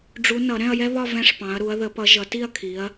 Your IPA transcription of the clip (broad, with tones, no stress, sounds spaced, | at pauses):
ɖ͡ʐ u˨˦ n ʌ˨˩˦ ɾ ɛ̃˥˧ ɐ̯ j ɛ˥ β ɒ˥˧ v ɛ̃˥˧ ʂ p ɑ̃˨˦ ɐ̯ ɾ u˨˦ ɐ̯ ð ə˨˦ p ʌ˨˦ ʒ ʌ˨˦ t i˥˧ ɐ̯ kʰ i˨˦ ɐ̯